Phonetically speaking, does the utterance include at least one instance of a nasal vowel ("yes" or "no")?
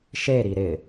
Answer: no